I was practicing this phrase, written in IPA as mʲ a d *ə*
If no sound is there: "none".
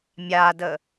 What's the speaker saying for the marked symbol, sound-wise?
ə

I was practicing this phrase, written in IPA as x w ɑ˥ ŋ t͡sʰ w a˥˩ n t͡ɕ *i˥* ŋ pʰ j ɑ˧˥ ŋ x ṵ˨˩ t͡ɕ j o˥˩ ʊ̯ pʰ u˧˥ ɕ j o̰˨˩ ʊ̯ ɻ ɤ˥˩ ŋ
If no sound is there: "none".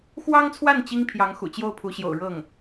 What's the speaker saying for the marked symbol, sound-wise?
i˥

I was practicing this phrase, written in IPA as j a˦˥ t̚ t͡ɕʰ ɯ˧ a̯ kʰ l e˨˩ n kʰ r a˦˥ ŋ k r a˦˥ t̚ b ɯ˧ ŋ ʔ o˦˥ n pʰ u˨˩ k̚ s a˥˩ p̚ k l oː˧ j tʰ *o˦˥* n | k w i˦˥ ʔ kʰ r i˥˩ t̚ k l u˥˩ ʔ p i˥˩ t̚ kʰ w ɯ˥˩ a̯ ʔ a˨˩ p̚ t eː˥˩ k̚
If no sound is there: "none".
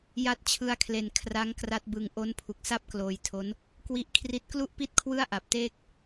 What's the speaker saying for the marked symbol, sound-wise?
o˦˥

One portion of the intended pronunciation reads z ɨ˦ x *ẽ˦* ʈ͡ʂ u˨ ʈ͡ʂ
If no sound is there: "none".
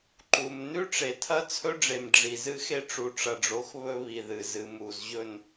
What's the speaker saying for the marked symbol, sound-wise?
e˦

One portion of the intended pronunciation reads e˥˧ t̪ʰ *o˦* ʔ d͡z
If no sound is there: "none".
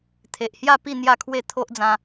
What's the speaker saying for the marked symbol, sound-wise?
o˦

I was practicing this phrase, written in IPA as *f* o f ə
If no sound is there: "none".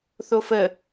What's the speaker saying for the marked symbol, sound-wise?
θ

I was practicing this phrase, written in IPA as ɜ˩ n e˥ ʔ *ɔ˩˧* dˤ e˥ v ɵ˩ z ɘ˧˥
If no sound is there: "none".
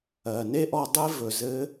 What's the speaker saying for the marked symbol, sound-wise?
ɔ˧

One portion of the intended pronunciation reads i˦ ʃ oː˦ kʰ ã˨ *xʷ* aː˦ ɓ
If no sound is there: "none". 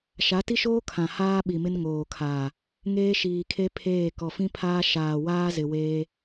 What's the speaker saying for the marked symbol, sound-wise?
h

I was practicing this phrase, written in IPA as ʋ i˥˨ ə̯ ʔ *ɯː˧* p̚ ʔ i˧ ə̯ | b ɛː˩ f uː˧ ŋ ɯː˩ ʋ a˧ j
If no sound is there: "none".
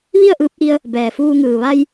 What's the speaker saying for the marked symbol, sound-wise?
ɯː˧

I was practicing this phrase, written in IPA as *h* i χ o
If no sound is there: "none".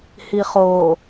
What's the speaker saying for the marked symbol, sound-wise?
h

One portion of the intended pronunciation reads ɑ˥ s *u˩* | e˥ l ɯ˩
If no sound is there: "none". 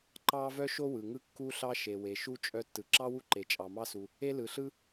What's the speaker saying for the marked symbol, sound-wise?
u˩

